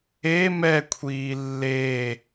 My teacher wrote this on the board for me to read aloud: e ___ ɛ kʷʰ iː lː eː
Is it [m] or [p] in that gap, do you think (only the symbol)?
m